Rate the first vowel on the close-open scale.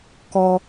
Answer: mid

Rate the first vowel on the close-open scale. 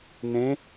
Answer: mid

